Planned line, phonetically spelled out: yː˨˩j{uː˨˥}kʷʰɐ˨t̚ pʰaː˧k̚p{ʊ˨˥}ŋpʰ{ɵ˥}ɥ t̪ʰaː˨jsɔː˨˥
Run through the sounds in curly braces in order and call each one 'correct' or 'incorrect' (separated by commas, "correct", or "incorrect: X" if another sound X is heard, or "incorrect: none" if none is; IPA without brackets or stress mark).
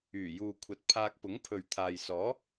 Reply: incorrect: uː˨, correct, incorrect: ɵ˨